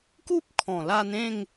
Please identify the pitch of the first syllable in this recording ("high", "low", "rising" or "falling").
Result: high